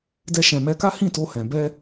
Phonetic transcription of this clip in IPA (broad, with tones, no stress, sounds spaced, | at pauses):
d ɛ˧ ʃ ɛ̃˨ m ɛ˧ k a˦ h ĩ˦˨ t o˧ h ɛ̃˨ b ɛ˧